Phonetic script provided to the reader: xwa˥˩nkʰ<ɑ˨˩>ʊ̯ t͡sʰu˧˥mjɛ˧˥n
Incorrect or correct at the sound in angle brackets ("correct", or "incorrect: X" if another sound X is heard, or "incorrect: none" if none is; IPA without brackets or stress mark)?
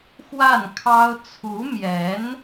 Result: incorrect: ɑ˥